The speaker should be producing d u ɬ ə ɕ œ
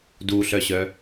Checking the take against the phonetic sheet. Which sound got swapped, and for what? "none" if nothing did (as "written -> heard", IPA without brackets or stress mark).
ə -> œ